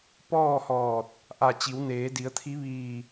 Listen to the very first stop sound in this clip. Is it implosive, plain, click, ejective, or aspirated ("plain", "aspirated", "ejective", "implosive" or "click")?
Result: plain